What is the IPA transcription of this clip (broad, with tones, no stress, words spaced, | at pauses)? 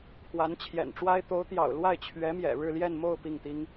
pʰwa˧˥nt͡ɕʰjɛ̰˨˩nʈ͡ʂwa˥ɪ̯ t̪o˧˥ʊ̯t̪jɑ̰˨˩ʊ̯lwa˥˩ɪ̯ t͡ɕʰɥɛ˧˥ mjɛ̰˨˩ɻɻ̩˥˧ljɛ˥˧n mo˥˧ʊ̯ pi˥˩ŋt̪i˥ŋ